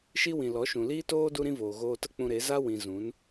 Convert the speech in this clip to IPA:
ʃi˦wĩ˨ lɔ˨˦ʃũ˨liː˦toː˦ du˦ɾĩ˦voː˨ ɣoː˧tə˦ k͡pũ˧ɾe˨˦ za˦ wĩ˧ zũ˨˦n

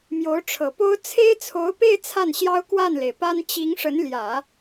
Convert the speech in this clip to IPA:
mjo˧˥ʊ̯ʈ͡ʂʰɤ˨˩po˥ʊ̯ t͡sʰe˥ɪ̯t͡sʰo˧˥ʊ̯pe˥˧ɪ̯ t͡sʰa˥˩nɕjɑ˥ʊ̯ kwa˥˩nle˩ɪ̯pa˥n t͡ɕi˧˥ŋʂə˧˥nljä˨˩˦

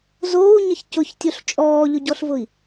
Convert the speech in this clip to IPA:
zoːu̯ɲəç cʊçtʲoɬ t͡ʃʼɔːʎʊɟɔɬvʊi̯

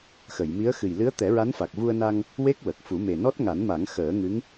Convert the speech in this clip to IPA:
xə˨˩˨jmi˧˥ə̯ xɨ˨˩jlɨ˧˥ə̯t̪ɛ˨˩˦ ɹa˧˥nfa˨˩k̚vu˧ə̯na˧ŋ | we˦˥k̚wə˨˩k̚ fu˨˩˦me˨˩nɔ˦˥t̚ ŋa˨˩˦nma˨˩˦ŋ xəː˨˩˦ ŋɨ˧˥ŋ

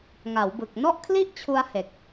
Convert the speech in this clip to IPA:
ŋa˩˦wbɯ˨˩k̚ nɔ˥˩ʔkʰli˥˩ʔt͡ɕʰu˧a̯ he˨˩k̚

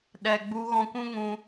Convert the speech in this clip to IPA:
ɗɛ˨ɡ͡bu˧ɣɔ̃˧ kʷũ˦ŋũ˧

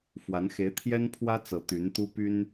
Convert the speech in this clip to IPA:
fwa˧˥n xe˧˥ɪ̯t̪ʰjɛ˥npʰwä˥ t͡sɤ˧˥t̪y˧˥nt̪u˥ py˥n

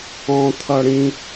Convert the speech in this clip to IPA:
ɔ̃t̪ʰʌ ɽĩ

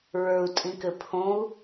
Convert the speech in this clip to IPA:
ɹə˞u̯tʼĩkɘ pʰõu̯

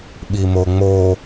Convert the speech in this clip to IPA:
ɓimoŋ͡mo

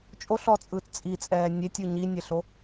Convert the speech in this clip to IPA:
t͡ʃʼoɬɔt͡sʼɯːt t͡sʼit͡sʼɛː nʲetʲɯ ɲinʲeɬo

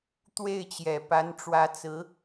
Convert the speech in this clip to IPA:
t̪we˥˩ɪ̯t͡ɕjɛ˨˩ pa˧˥nʈ͡ʂwä˧˥t͡sɹ̩˧˥

